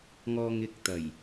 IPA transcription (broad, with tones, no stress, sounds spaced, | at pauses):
ŋ ɔː˨ ŋ ɪ˨˥ k̚ t̪ ɐ˨˩ j